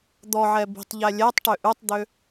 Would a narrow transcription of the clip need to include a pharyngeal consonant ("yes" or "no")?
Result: yes